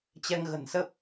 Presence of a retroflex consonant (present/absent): absent